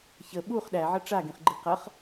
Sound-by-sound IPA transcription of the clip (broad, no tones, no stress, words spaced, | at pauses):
çə ɓuχ ɗæʕə ʈ͡ʂaɡĩχɡ͡ǃi qɐχ